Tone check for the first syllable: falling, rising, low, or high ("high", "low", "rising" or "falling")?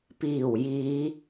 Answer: low